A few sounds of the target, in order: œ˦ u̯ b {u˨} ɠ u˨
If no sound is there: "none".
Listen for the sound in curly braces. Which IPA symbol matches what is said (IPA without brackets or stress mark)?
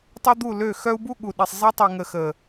u˦